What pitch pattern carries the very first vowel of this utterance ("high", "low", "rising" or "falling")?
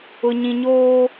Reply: low